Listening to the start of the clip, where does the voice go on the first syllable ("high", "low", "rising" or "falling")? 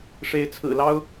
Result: rising